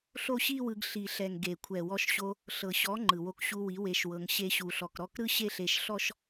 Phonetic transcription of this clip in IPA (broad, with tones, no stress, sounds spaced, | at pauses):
ɬ o˦ ɕ i˦ w ɯ˧ ɡ ɬ i˨ ɬ ɛ˨ ŋ ɡ e˨ kʷʰ ɛ˨ w ɔ˧ ʃ ɕ o˧ | ɬ ɤ˨ ɕ ɔ˨˦ ŋ͡ǃ ɯ˨ w o˧ k ɕ u˧ w i˨˦ w e˧ ʃ w ɤ˧ ŋ ɕ e˧ ɕ u˨ ɬ ɔ˨ k ɾ ɔ˦˨ k ɾ ɯ˦ ɕ e˦ ɬ e˧ ʃ ɬ ɔ˦ ʃ